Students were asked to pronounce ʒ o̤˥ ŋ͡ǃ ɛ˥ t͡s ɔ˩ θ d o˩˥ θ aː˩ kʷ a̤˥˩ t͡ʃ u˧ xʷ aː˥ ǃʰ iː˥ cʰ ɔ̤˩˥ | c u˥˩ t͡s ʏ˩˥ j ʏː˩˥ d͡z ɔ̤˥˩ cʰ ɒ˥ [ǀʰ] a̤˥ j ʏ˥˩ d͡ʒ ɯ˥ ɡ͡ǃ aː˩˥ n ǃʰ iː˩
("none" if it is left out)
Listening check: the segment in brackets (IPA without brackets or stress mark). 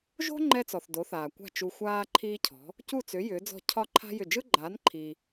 ǃʰ